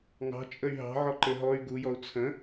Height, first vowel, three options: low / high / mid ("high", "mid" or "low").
low